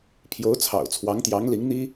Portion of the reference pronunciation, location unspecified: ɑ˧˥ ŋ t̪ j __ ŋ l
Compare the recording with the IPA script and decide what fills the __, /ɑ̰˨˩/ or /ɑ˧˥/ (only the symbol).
ɑ˧˥